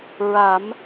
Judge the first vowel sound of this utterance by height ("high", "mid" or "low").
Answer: low